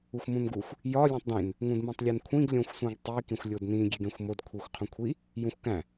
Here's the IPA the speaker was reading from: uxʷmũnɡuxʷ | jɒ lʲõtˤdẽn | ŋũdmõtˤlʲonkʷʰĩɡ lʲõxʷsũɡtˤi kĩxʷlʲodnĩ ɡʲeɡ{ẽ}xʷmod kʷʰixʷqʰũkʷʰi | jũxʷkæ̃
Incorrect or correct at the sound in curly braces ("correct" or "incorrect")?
correct